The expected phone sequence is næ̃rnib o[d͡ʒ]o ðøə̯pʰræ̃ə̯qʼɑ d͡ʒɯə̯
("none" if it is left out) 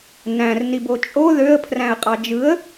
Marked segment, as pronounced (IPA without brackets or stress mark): t͡ʃʼ